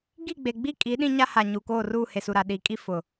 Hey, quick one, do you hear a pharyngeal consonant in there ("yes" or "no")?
no